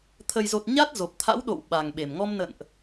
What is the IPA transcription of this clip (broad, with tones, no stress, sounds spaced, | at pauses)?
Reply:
t̪ʰ ə˨˩ j z o˨˩ t̚ ɲ a˦˥ t̚ z o˨˩ p̚ t̪ʰ a̰˧˥ w ɗ o̰˧˨ w ɓ a˨˩ ŋ ɓ e˨˩ m ŋ ɔ˧ m n ə̰˧˨ n ʔ